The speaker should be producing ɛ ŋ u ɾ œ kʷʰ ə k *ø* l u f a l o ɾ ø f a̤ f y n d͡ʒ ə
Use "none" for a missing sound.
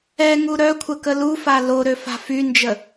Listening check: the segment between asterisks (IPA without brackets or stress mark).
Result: ə